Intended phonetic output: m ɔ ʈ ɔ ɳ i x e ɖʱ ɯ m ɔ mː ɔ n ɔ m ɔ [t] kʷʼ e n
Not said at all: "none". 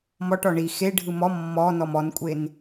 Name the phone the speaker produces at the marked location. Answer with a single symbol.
n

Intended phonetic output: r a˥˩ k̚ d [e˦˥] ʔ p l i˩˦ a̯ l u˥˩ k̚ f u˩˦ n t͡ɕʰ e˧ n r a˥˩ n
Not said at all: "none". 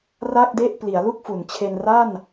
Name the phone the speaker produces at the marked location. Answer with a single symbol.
e˥˩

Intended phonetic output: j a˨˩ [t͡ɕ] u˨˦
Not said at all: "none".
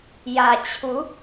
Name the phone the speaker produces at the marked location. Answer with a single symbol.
t͡ɕʰ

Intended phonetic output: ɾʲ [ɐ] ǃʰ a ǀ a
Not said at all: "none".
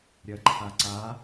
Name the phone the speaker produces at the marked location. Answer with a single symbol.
ɐ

